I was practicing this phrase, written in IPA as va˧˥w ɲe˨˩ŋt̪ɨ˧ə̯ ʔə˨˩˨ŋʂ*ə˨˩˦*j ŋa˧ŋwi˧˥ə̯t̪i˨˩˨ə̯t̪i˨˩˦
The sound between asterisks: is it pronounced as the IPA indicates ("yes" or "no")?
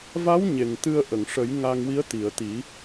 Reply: yes